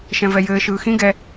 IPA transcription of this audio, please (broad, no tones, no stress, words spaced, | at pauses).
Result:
ʃɛ̃vɛjɘː ʃɯːxĩ ɡɛ